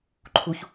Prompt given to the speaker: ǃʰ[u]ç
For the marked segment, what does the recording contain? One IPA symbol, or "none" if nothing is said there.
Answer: u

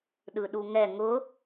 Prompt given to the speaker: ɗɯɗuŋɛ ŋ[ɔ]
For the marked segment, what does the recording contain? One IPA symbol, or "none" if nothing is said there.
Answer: ʊ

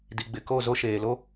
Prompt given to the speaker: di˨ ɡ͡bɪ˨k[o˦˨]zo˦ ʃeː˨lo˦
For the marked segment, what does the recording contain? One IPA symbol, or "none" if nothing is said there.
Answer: o˦˨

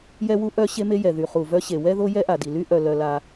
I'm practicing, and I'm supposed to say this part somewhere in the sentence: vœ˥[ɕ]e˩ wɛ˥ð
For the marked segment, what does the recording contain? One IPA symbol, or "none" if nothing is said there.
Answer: ɕ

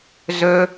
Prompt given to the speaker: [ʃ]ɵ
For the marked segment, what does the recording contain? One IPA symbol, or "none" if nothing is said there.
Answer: z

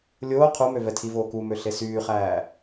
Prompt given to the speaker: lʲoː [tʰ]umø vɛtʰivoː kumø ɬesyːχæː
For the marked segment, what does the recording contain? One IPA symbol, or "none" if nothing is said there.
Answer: qʰ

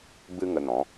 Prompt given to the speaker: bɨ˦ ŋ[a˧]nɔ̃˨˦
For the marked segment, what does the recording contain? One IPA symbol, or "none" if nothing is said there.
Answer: ə˧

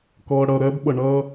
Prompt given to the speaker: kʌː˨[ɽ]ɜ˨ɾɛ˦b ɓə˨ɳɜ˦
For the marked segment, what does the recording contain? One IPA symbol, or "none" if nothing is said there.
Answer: ɽ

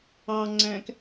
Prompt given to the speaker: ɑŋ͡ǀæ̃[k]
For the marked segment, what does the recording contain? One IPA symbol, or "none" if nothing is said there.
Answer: k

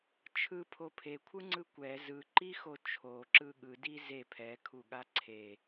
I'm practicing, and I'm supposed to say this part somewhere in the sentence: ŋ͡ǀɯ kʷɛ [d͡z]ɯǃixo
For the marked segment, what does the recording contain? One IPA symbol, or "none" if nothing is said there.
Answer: z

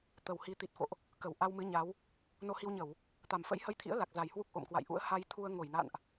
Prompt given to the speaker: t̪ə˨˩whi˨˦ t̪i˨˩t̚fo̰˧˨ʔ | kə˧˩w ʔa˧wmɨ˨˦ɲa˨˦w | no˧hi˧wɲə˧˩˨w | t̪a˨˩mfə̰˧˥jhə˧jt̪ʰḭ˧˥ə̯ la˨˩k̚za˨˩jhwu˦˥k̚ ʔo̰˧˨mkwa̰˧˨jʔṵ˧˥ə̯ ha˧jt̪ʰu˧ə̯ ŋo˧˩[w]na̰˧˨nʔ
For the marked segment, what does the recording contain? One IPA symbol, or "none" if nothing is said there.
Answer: j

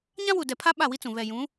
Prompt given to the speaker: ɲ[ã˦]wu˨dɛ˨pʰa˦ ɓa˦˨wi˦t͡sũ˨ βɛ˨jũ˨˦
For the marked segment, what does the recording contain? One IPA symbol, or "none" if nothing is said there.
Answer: ã˦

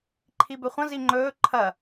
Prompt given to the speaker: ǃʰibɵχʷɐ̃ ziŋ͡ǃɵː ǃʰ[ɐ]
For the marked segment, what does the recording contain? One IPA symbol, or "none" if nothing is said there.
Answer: ɐ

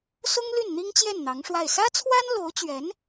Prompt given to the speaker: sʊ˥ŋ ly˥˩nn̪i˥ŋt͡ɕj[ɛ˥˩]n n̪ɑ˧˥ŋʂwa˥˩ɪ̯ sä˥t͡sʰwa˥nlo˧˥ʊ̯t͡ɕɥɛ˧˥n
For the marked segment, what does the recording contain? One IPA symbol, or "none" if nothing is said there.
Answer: ɛ˥˩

